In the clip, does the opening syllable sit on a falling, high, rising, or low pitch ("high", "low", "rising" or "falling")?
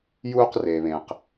high